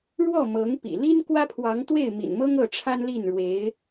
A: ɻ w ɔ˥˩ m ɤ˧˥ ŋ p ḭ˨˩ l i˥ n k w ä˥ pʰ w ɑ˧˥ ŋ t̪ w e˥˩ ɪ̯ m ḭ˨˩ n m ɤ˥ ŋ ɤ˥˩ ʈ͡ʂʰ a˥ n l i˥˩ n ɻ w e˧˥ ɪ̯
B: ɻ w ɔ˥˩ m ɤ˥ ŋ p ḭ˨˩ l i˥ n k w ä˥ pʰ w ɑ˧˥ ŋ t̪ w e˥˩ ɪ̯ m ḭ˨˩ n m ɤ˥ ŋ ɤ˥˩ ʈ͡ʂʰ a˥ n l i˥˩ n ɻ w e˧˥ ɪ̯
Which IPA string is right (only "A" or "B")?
A